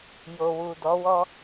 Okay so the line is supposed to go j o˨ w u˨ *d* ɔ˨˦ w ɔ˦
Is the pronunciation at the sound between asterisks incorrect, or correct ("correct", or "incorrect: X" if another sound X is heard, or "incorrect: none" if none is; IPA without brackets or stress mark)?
correct